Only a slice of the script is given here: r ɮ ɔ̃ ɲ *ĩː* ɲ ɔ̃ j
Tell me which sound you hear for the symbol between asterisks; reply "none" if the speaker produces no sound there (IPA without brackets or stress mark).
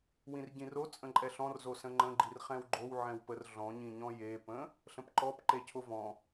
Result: ĩ